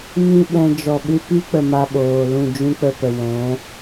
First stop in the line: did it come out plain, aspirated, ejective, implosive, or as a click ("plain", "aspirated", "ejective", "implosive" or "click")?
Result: implosive